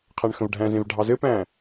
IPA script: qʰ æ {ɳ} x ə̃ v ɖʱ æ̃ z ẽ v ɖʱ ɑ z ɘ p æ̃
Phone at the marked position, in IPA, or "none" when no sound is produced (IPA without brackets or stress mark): ɳ